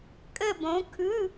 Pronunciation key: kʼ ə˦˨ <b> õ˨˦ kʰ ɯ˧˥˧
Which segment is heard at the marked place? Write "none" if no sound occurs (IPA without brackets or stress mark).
b